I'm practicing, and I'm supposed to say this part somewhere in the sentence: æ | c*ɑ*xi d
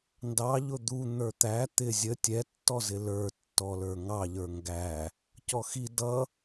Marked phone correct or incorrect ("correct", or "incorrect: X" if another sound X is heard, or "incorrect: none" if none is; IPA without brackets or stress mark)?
incorrect: ɔ